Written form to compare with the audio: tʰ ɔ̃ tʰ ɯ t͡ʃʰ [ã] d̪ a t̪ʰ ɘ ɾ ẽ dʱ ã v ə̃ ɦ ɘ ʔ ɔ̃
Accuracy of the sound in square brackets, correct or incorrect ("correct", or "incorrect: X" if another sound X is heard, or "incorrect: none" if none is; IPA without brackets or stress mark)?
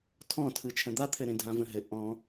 incorrect: ə̃